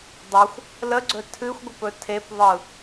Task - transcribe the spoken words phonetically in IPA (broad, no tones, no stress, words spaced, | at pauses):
dˤoxʷ | ləɡ͡ǀɵ tʰɨxʷɡʷəpɵ tʰepðˤɯ